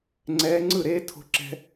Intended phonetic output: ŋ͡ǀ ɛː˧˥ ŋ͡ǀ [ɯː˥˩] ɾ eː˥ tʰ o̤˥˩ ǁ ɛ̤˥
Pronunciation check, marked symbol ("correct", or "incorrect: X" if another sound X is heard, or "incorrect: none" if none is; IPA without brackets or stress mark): incorrect: ɯ˥˩